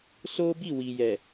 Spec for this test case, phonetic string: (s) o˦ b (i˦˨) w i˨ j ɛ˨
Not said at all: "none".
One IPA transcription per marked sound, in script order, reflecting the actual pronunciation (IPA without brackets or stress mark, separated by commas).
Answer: s, i˦˨